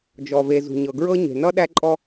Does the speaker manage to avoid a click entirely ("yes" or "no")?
no